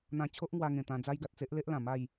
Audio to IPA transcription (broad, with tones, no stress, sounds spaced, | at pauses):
n̪ ã˧ t͡ɕʰ o˦ ʔ ŋ w a˧ ŋ ẽ˨˩ t̪ ã˧ d͡z a˦ j ɡ a˨ t̚ t͡s e˦ ʔ l e˦ ʔ l ã˨˩ m a˥˧ j